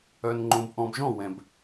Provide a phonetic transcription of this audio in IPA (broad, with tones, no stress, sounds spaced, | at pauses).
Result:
œ˨ n ŋ͡ǃ õ˨ b ʔ ɔ̃˨ b ʒ ɔ̃˦˨ w ɛ̃˨ b